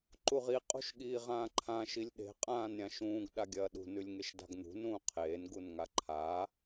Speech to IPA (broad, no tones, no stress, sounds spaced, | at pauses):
ǃ u ʁ i qʼ ṳ ʃ ɠ iː ʁ ãː ǃʰ ã ʃ i lʲ ɗ e̤ qʼ ãː n ɾʲ ã ʃ ũː ɡ ɗ a ɡʲ ɐː ɗ ṳ n ʉ lʲ ŋ e ʃ d a̤ ɡ n̪ ṳ n ũː qʰ eː n ɡ u n ŋ a ǃʰ a